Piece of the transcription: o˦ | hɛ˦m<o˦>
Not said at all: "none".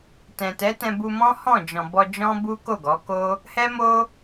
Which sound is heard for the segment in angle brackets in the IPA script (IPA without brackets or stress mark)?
o˦